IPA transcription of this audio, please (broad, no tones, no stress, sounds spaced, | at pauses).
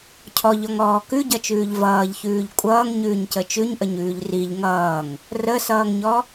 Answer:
cʰ ɔ ʎ ɔ ŋ ɔː k ʉ ɟ ʌ t͡ʃ ʉː ʎ v ʌː ʎ ç ʉː ʎ kʷʼ ʌː ŋ ɲ ʉː ɲ c ə t͡ʃ ʉ ɲ ʔ ə ɲ ʉː ʎ r i ʎ ŋ ʌː ŋ | r ə s ʌː ŋ ɲ ɔ